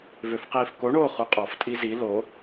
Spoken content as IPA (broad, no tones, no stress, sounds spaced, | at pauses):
v ø f q iː f k o ɳ oː χ u qʼ ɔ f tʼ i z i l o